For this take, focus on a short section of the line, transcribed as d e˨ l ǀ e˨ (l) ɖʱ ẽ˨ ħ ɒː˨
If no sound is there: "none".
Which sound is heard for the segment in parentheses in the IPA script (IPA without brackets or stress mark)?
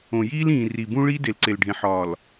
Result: l